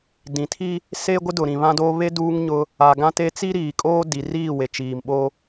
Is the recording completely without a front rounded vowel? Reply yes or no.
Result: yes